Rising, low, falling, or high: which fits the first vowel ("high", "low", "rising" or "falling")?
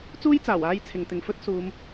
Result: high